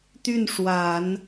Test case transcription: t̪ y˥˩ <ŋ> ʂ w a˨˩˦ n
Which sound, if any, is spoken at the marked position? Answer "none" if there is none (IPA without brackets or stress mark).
n